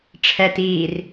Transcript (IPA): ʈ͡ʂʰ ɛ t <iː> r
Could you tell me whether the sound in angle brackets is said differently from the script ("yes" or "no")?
no